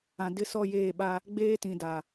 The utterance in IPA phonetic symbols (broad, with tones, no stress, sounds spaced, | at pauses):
ã˨ d ɪ˦˨ s ɔ˦˨ j eː˦˨ ɓ a˦ | ɡ͡b eː˦ t ĩ˨ d a˨